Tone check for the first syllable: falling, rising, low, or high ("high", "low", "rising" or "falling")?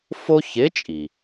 high